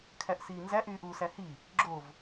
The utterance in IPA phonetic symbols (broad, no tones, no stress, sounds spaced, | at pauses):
kʰ æ ʔ s iː n z æ ʔ yː ʔ uː s æ h i | ɡ͡ǁ o v